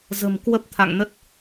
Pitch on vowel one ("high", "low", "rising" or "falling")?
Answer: low